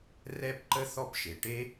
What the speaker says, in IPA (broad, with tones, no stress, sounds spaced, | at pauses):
r ɛ˦ p ǃ ə˦ θ ɔ˦ p ʃ e˩ ʈ e˥